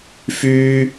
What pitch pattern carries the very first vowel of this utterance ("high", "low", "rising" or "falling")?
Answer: high